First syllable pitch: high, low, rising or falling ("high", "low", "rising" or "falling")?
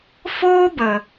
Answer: high